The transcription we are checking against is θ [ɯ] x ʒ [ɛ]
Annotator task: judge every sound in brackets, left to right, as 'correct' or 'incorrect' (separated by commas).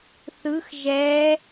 correct, correct